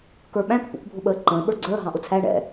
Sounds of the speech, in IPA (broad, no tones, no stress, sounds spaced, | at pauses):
k ə˞ ɓ æ̃ k p ṵ k bʱ ʊ ɓ əː ǃ ə̃ː ɓ ə˞ ɡ͡ǀ əː ɦ ɑ̃ ʔ ʊ t͡sʰ æ ɳ ɛ̰